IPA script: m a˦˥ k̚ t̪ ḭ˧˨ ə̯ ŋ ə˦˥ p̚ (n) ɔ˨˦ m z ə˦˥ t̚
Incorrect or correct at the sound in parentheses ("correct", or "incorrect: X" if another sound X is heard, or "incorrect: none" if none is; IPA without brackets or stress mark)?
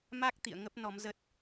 correct